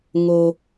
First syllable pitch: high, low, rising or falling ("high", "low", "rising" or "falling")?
high